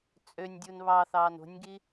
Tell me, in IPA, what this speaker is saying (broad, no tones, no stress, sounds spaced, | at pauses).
t͡sʼ ø nʲ dʲ u n β ɑ θ ɑː n o̤ nʲ ɡ i